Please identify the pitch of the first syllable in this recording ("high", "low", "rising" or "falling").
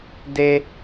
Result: high